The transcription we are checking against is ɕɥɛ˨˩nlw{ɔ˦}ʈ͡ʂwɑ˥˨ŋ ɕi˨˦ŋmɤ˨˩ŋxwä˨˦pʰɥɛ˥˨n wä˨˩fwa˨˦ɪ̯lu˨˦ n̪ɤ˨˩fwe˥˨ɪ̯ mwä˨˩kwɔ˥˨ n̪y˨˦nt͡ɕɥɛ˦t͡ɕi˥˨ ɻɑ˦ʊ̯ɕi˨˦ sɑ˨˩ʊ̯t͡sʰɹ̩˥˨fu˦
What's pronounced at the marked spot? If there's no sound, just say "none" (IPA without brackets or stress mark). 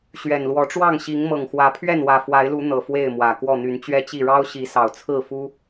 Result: ɔ˨˦